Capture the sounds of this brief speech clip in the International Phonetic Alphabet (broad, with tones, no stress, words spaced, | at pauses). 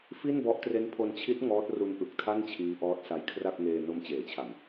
fi˥˩nbɔ˦˥ʔ tre˦˥npʰo˧nt͡ɕʰi˦˥t̚ ŋɔː˦˥t̚ru˦˥nʔɯ˨˩k̚tʰa˥˩n t͡ɕʰiː˦˥ʔɔː˦˥t̚sa˧j kʰra˥˩k̚ŋeː˧ no˧mt͡ɕeː˩˦t͡ɕʰa˨˩m